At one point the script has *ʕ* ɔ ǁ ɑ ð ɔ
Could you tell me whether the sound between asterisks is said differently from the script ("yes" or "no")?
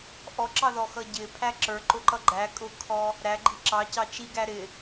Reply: yes